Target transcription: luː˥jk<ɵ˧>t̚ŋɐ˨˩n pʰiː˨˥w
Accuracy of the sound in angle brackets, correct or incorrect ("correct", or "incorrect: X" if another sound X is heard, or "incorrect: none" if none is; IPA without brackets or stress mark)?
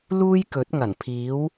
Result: incorrect: ɵ˨˥